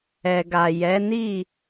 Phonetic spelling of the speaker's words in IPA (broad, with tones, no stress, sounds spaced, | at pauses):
ɛ˨ ɡ a˨ j ɛ˨˦ n i˦˨